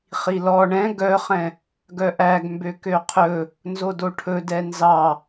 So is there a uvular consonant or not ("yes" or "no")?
yes